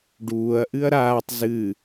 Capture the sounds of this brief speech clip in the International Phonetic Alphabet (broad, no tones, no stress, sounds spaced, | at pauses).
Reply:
ɖ uː ɐ̯ ʔ ɨ ɐ̯ ɾ aː tˤ z ɨ